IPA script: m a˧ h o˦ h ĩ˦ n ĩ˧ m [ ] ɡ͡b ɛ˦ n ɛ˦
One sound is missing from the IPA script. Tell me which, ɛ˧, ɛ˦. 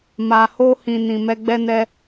ɛ˦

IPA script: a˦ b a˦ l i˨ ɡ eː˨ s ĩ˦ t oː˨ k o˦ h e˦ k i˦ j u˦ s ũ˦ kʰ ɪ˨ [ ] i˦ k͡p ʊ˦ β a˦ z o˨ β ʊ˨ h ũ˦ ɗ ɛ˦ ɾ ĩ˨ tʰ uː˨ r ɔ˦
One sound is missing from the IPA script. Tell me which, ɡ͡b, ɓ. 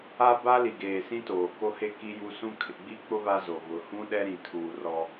ɡ͡b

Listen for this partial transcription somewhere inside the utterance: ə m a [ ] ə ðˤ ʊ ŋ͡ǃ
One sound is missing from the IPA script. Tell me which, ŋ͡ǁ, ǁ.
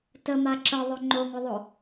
ǁ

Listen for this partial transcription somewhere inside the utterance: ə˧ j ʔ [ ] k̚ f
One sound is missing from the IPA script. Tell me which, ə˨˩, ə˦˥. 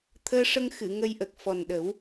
ə˨˩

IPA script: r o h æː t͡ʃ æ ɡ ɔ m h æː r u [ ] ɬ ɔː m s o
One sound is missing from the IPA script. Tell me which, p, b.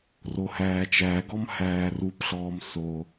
p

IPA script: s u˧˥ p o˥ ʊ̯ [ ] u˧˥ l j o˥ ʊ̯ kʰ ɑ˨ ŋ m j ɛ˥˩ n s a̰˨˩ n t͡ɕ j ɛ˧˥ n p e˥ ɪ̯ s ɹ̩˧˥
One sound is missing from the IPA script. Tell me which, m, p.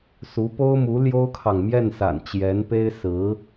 m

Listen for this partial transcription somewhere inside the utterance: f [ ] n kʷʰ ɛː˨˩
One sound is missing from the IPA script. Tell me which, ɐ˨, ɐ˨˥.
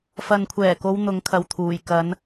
ɐ˨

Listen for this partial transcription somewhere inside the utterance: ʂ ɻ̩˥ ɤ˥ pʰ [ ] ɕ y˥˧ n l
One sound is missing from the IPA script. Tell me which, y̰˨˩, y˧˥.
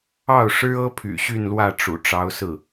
y̰˨˩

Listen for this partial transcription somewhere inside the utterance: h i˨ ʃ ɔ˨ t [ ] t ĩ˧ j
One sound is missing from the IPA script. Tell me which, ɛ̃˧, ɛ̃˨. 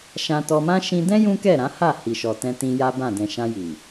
ɛ̃˧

